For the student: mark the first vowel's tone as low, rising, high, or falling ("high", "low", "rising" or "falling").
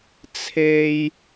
low